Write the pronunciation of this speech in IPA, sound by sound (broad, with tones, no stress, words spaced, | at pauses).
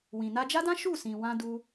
wĩ˨na˧d͡ʒa˦dã˦ ʃu˦˨sĩ˨wã˧ du˦